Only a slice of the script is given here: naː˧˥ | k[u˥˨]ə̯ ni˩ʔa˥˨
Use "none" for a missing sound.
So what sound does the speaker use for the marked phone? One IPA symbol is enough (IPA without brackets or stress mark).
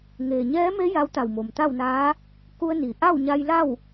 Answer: u˧